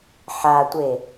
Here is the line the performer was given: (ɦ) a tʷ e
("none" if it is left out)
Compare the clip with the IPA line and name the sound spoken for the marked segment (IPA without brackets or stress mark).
ħ